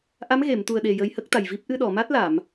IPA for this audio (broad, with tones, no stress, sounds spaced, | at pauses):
ʔ a˧˥ m ɣ e˨˩˨ m t̪ u˨˩ ə̯ ɗ e˨˩ j ə˧ j h ə˦˥ k̚ t̪ a˨˩ j v i˦˥ p̚ ʔ ɨ˧ ɗ ɔ˨˩˨ m a˦˥ t̚ l a˨˩˨ m